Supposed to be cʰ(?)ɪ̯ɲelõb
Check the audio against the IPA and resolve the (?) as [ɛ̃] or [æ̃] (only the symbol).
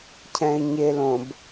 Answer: ɛ̃